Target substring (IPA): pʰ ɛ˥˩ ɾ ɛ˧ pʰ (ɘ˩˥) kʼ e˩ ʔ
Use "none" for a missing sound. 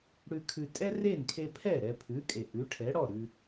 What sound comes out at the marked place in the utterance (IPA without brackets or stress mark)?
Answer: ʉ˩˥